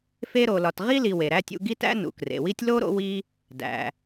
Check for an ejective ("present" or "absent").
absent